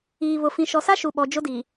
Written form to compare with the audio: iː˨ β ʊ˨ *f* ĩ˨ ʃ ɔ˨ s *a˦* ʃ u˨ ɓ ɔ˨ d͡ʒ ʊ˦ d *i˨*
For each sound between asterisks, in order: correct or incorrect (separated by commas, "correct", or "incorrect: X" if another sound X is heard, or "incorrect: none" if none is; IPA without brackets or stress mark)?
correct, correct, correct